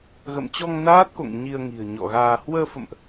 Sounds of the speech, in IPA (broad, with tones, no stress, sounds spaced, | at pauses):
ɣ ə̰˧˨ m t͡ɕ ɔ˧ ŋ n aː˦˥ t̚ k o̰˧˨ ŋ ɲ i˧ ə̯ ŋ i̤˨˩ ə̯ ɲ ɔ̰˧˨ ɣ aː˧ h w əː˧ f ə̰˧˨ m ʔ